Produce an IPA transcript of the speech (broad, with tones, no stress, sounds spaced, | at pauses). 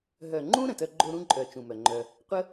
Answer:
ɦ œ˨ ŋ͡ǃ ũ˦ ɾ ə̃˨ t œ˦ ɡ͡ǃ o˦ ɾ ũ˦ ǃʼ œ˨ t͡ʃ ũ˨ m œ˨ ŋ͡ǃ œ˧ | qʷ ə˦